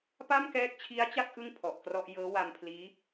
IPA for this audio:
pa˥˩mkɛː˦˥k̚t͡ɕʰi˦˥a̯t͡ɕa˥˩k̚ ʔɯ˥˩ŋ pʰɔ˨˩ʔkrɔ˥˩ʔ jɤː˦˥wa˧mpʰliː˦˥

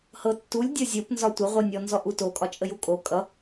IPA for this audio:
hɤtːulʲ dʲozʲopnzɒ tʷəʁʷɤnʲɔ nzɔʔuto kʼɒt͡ʃʼəjukʼo kʼʌ

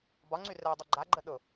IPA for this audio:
bɒŋ͡ǀy rɛ dˤʊɡ͡ǃaɡ͡ǃə ɗʊ

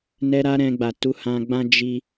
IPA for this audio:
nɛ˧ ɾa˦ɾɛ̃˧ɡ͡ba˨ tu˨˦hã˧ɡ͡bã˦ d͡ʒi˧

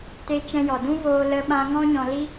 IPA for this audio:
te˧t͡ʃɛ̃˧jɔ˨dũ˦ voː˧lə˧ɓã˧ ŋɔ̃˦ɲɔ̃˧li˦

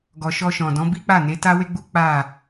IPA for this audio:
ɡɔ˨ʃɔ˧ʃɔ̃˨ dɔ̃˨˦bi˦k͡pa˦˨ ne˨˦ta˦we˦ɡ͡bu˦ k͡pa˦˨

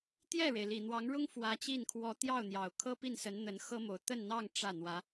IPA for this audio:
t̪jɛ˥˩ɻe˩ɪ̯ li˨˩n̪wɑ˧˥ŋɻʊ˥ŋ fwä˧˥t͡ɕi˥˩n kʰwɔ˧˥t̪jɑ˥˩ʊ̯n̪jɑ˨˩ʊ̯ kʰɤ˥pi˥˩nsə˧˥n n̪ə˧˥nxɤ˥mo˧˥ʊ̯ t̪ə˥˧nn̪ɑ˥˧ŋ ʈ͡ʂä˥˩n̪wä˧˥

